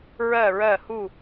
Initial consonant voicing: voiced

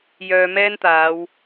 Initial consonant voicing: voiced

